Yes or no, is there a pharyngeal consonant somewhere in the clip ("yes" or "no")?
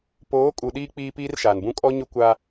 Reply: no